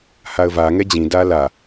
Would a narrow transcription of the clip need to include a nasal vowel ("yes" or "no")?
yes